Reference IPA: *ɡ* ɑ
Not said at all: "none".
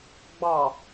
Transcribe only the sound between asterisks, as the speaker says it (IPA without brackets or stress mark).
ɡ͡b